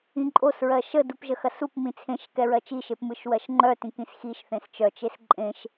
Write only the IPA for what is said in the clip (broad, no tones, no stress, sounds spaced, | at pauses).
ĩ ǃʼ o s ɹ ɜ ʃ ə d u p ʒ ə x ɐ s u p m ĩ t͡sʰ ẽ ʃ k ɛ ɹ ɜ t͡ʃ i ʃ e p m ɯ ʃ w ɜ ʃ ŋ͡ǃ œ t ĩ k ĩ s x i ʃ θ ẽ s t͡ʃ œ t͡ʃ e s ǃʼ ẽ ʃ